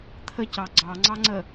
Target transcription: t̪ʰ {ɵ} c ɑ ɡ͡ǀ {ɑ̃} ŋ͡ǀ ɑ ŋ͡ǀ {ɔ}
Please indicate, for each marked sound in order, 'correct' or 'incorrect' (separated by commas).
incorrect, incorrect, incorrect